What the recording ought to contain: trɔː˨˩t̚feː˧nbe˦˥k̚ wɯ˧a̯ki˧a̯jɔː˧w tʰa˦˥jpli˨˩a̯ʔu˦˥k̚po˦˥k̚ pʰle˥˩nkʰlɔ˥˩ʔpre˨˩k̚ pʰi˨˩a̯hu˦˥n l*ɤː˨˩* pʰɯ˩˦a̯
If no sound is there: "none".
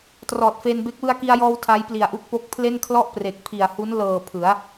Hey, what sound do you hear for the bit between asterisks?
ɤː˨˩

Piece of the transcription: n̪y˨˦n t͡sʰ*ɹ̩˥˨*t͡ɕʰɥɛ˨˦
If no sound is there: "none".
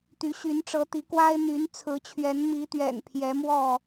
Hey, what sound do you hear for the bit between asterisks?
ɹ̩˨˦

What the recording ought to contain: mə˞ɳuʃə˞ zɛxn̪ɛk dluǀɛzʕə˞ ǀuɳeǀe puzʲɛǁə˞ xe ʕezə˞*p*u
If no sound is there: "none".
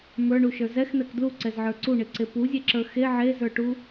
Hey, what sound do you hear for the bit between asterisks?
ʈ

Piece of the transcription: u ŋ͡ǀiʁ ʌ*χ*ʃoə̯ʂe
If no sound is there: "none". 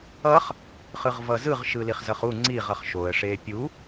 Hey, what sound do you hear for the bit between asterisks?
χ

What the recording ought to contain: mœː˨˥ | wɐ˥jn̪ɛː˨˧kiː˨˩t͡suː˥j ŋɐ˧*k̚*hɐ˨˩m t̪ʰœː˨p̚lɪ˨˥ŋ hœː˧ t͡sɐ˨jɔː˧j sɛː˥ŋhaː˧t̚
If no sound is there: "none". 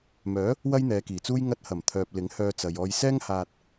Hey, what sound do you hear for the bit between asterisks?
t̚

